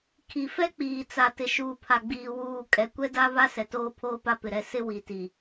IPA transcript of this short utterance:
kʰi˨fɛ˦k͡piː˨t͡sa˨ tɪ˨ʃuː˨pʰa˨ɡ͡biː˨ wuː˦˨ kʼɛ˨ kʷɛ˦da˦ βa˦ sɛ˨toː˦pʰoː˦pa˦ pɪ˨ɾɛ˦˨ sɪ˦ wi˨ti˨

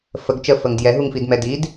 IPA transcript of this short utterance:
fəɡ t͡ʃəfəŋ djɛɦuŋfidmɛ did

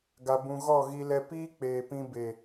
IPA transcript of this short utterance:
ɡa˧bũ˧ ɣɔ˦˨ɣi˧ lɛ˧piː˦k͡peː˨ pĩ˧be˨

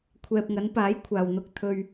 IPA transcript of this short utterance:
kʷʰɛː˨p̚ŋɐ˨˧npaː˨˥j kʷʰaː˨wn̪ʊ˧k̚ t̪ʰɵ˧ɥ

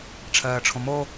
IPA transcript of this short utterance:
ʈ͡ʂʰɜːʈ͡ʂʰõmo

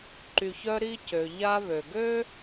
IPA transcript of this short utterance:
ǃy˧çœ˦ ɾi˧cø˨ ʎa˦ βø˨ɡø˦

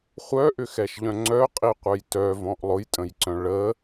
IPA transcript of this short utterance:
χʷœʔʏxɛʃʎœ̃ ŋ͡ǀœqʼiqʷœj tœvɔ̃ʔ lˠʊjtʼə̃jǀœ̃ ɭə

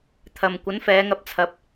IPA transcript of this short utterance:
t̪ʰɐ˨m kʷɐ˨˥nfɛː˨˧ŋɐ˧p̚ t͡sʰɐ˧p̚

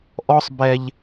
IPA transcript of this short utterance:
ʔɔ˦sˤ bɛ˦ʎ

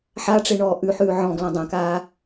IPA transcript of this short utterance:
ħaʈ͡ʂeɳɔː ʔʉħʉː ʕɔ̃ɡlɔ̃ dˤãkaː

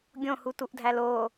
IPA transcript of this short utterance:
ɡʲõhutuʔdʱæl o

